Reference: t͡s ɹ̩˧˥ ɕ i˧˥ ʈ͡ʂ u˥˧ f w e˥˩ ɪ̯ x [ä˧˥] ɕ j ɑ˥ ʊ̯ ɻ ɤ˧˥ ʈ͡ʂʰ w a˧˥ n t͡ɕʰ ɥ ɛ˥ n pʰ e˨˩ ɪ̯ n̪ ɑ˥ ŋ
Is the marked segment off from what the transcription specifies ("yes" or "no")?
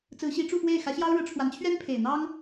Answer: no